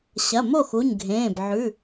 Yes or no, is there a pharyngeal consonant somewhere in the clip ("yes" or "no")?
yes